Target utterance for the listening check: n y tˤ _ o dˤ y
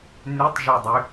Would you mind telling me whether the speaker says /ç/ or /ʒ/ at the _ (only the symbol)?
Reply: ʒ